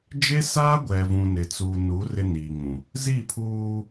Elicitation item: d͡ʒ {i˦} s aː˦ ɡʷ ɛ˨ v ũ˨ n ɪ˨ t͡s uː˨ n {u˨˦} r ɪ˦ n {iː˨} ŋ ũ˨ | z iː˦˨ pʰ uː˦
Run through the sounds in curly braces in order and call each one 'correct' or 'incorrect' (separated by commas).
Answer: incorrect, correct, correct